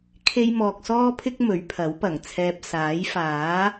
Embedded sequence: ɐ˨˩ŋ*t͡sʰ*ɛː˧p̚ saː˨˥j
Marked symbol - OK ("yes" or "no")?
yes